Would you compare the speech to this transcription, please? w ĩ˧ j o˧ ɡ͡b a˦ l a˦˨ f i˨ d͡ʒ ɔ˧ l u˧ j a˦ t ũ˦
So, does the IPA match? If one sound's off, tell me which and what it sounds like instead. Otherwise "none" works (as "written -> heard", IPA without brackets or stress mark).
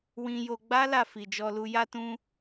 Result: none